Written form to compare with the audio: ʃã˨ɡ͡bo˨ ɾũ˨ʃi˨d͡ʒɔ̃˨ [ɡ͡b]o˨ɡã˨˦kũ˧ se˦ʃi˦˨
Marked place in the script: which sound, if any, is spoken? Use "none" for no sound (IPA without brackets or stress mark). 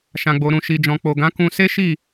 k͡p